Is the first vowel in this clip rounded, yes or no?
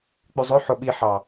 yes